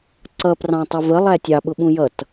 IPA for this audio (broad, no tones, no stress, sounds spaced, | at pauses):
ǀ ʌ p r ɑ̃ tˤ i v ə lˠ æ tʲ ɑ ɓ ʊ ɓ ũ j ʌ t